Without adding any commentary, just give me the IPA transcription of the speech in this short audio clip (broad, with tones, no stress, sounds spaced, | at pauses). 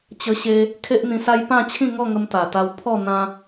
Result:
t͡ɕ ə˦ ɕ e˦ | kʰ e˦ ʔ n̪ ĩ˧ s a˦ j p ã˥˧ t͡ɕʰ ĩ˥˧ ŋ ɔ˥˧ ŋ ə˧ m t̪ a˨˩ t̪ a˧ w pʰ ɔ˥˧ n̪ ã˦